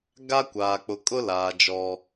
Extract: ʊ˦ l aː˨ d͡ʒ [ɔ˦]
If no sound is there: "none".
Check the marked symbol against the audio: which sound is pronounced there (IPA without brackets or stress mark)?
ɔ˦